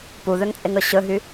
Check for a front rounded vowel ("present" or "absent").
present